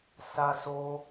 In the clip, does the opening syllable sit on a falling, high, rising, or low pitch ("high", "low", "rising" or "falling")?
high